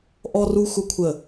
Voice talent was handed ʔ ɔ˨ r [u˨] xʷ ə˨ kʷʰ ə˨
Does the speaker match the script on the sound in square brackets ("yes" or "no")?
yes